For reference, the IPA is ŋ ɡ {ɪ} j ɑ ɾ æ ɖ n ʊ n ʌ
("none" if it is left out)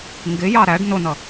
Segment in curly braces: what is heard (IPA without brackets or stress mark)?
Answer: ɪ